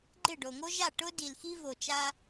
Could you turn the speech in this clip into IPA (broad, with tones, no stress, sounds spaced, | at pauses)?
ɡ͡ǃ ɪ˦˨ ɖ o˨ ŋ o˦ ʒ a˦˨ ʈ ʊ˦ d i˨ l x i˦ v o˨ t͡ʃ a˦